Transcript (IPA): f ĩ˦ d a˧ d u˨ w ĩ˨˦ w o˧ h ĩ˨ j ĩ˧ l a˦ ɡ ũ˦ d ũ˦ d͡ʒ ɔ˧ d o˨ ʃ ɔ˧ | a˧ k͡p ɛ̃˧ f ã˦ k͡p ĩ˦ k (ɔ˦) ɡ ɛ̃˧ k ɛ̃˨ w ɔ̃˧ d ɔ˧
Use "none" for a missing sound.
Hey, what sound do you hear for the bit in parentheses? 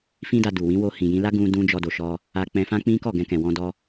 ɔ˦˨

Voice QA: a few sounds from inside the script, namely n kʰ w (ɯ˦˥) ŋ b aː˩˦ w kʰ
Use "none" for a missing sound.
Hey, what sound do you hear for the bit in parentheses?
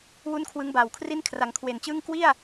ɯ˦˥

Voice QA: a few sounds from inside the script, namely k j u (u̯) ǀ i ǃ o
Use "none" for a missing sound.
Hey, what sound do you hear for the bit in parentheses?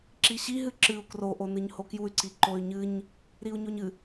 y̯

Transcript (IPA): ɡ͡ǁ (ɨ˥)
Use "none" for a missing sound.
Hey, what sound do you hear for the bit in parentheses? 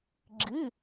ɨ˧˥˧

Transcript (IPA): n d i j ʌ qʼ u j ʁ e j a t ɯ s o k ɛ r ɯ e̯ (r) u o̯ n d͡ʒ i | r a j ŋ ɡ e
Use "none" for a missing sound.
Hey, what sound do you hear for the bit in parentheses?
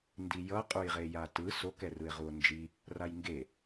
ʁ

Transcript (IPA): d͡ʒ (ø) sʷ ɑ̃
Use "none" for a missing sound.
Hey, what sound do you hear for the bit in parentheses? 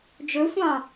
ø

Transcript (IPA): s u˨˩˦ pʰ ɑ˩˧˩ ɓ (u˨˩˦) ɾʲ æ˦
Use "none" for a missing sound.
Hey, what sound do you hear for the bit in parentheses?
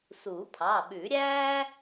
ʉ˨˩˦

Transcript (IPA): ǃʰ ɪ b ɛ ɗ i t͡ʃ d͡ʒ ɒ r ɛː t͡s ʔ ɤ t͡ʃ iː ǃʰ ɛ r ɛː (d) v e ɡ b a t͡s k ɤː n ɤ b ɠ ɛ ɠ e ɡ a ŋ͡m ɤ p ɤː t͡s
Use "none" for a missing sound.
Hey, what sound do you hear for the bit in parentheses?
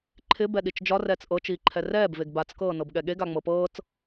b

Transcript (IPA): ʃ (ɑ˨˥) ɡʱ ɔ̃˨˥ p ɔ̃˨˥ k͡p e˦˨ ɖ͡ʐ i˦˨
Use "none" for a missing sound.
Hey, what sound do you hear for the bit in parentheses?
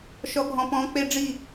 ɔ˨˥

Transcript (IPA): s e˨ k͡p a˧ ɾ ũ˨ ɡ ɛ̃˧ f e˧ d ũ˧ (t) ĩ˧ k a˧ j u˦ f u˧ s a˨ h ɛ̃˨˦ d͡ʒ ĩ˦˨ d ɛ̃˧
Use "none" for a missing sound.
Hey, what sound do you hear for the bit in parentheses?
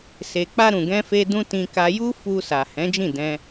t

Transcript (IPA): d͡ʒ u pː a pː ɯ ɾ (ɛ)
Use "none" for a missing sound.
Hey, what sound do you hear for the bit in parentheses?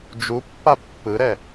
ɛ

